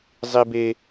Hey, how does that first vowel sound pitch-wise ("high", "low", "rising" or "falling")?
high